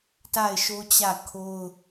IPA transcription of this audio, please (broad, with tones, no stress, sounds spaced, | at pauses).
t a˦˨ ɪ̯ ʃ o˦ t͡ɕ ä˦˨ kʰ o˦ ʊ̯